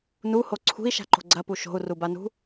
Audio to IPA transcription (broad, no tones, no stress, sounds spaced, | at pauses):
n u h o ǀʰ ṳ i̯ ʃ a̤ ǃ o̤ ɡ͡ǀ ɐ p u ʃ o̤ u̯ r u b a n ṳ